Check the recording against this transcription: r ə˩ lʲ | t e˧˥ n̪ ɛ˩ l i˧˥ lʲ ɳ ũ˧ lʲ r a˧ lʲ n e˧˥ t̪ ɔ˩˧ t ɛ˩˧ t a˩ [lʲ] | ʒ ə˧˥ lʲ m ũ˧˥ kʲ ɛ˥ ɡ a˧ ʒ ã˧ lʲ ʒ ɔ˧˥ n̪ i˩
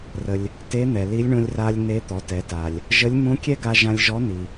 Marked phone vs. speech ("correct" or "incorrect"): correct